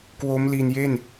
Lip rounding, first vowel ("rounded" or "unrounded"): rounded